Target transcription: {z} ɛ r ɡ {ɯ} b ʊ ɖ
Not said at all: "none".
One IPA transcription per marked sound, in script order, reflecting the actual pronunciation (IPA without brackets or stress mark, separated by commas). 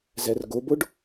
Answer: z, ʊ